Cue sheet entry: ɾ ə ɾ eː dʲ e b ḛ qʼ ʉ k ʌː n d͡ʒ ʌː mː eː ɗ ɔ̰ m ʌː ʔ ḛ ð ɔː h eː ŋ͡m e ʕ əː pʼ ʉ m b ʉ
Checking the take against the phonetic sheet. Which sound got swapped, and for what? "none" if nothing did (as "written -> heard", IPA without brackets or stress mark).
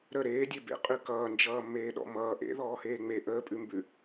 ʕ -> ʔ